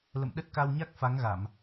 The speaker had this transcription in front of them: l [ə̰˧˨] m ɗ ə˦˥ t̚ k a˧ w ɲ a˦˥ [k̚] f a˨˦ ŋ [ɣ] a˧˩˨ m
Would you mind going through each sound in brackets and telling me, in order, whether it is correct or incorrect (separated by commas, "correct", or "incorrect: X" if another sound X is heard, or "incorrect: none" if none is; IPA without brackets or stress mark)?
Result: correct, correct, correct